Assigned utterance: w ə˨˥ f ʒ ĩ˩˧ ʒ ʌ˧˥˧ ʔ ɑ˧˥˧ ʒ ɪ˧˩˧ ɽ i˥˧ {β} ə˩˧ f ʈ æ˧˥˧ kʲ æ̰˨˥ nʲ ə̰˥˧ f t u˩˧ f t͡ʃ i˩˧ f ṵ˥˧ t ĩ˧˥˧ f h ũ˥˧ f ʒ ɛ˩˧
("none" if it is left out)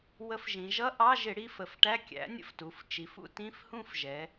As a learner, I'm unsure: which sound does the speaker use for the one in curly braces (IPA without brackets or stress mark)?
f